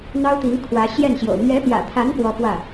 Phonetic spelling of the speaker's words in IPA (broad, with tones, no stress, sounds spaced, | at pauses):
n̪ ɑ˥ ʊ̯ t̪ i˧˥ ŋ kʰ w ä˧˥ ɕ j ɛ˥˩ n ɕ j o̰˨˩ ʊ̯ m ɥ ɛ˧˥ p j ä̰˨˩ t̪ʰ a˧˥ n p w ɔ˥ p w ä˥˩